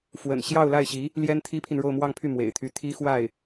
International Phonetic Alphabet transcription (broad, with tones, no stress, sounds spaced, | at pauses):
f w ə̰˨˩ n ɕ j ɑ˥˧ ʊ̯ l a˥˩ ɪ̯ ɕ i˧˥ | l j ɛ˥ n t̪ʰ i˥ pʰ i˨ n ɻ o˥˧ ʊ̯ m w ɑ˥˧ ŋ pʰ y˥˩ m w ḛ˨˩ ɪ̯ t̪ʰ y˥ t̪ʰ i˥ x w a˥˩ ɪ̯